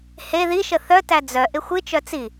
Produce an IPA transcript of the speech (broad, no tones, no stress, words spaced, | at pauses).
he ðiʃə θœtæ d͡zœ ʔɪxʷɨt͡ʃœ t͡si